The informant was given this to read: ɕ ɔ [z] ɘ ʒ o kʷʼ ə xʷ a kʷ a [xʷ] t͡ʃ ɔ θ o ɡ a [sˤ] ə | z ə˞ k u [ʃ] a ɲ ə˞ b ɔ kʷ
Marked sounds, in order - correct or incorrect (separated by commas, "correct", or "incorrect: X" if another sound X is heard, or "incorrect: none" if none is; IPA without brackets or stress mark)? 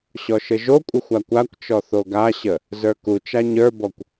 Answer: incorrect: ʃ, incorrect: kʷ, incorrect: ɕ, incorrect: t͡ʃ